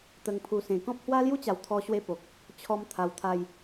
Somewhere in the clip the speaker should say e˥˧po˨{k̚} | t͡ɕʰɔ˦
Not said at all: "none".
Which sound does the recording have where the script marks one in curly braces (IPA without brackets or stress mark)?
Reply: k̚